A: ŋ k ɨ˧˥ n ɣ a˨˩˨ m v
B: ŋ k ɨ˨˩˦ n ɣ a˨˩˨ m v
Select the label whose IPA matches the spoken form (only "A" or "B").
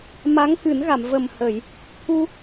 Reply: B